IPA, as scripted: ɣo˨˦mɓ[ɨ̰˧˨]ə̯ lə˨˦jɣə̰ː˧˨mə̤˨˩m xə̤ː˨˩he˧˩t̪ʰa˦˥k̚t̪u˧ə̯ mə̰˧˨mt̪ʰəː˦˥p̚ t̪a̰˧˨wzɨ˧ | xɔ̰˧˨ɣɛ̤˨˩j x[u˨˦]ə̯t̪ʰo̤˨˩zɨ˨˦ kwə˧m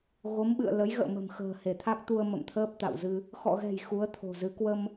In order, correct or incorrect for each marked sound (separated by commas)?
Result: correct, correct